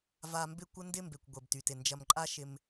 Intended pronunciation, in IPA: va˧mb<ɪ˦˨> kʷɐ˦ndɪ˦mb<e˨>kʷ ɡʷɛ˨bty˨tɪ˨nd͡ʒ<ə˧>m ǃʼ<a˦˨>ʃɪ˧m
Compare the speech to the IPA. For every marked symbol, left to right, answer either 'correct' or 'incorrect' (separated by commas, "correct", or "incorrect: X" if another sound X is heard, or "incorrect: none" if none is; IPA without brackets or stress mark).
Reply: correct, correct, incorrect: ɐ˧, incorrect: a˦